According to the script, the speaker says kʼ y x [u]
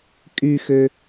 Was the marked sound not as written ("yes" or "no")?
yes